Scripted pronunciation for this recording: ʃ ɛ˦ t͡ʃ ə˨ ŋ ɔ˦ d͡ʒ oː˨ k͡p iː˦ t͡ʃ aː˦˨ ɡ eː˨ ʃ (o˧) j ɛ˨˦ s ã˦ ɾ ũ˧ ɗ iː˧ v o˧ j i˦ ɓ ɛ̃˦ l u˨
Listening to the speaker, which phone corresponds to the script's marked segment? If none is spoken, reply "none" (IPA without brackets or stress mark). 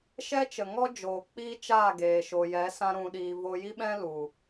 o˨